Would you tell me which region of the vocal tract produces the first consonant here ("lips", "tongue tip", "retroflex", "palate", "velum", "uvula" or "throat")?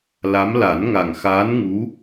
tongue tip